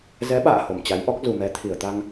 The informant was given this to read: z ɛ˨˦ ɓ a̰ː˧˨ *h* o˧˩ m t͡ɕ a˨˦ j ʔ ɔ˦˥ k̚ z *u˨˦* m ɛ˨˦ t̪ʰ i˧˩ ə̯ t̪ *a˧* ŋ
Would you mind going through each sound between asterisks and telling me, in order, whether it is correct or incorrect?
correct, incorrect, correct

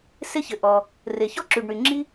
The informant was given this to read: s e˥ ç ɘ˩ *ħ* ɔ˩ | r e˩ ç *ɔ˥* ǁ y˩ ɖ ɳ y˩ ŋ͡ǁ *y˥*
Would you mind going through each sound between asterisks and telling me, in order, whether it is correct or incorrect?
incorrect, correct, incorrect

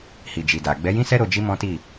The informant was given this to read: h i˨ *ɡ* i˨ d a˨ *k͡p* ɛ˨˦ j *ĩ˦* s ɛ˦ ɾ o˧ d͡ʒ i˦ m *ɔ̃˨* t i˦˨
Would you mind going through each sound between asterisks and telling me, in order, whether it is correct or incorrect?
incorrect, incorrect, correct, incorrect

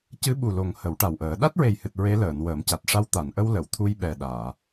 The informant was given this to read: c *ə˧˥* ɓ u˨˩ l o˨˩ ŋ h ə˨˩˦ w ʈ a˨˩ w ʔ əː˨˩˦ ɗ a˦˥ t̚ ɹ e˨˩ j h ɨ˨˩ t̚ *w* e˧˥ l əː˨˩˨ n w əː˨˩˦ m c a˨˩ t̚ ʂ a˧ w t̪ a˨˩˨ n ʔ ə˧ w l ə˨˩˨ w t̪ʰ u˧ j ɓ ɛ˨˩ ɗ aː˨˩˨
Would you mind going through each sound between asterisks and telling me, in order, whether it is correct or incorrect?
incorrect, incorrect

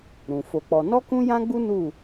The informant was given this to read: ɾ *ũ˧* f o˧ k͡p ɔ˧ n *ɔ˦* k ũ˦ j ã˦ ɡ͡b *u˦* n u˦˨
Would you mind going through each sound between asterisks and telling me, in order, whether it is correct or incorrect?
incorrect, correct, correct

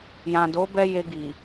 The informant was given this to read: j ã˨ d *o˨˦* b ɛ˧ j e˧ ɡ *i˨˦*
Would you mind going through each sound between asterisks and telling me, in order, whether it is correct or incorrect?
correct, incorrect

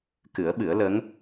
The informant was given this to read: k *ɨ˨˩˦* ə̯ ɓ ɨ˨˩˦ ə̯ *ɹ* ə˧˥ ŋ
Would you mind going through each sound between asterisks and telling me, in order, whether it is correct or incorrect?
correct, incorrect

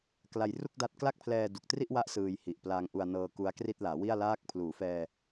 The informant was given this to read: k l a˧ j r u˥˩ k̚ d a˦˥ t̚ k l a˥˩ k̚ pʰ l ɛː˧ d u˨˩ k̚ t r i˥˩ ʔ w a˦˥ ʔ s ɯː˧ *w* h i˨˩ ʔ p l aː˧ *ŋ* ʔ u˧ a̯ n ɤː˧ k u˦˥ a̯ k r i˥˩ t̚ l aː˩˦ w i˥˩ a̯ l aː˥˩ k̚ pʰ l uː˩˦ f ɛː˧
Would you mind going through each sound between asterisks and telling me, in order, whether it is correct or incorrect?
incorrect, correct

